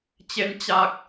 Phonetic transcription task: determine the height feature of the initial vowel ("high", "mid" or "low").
mid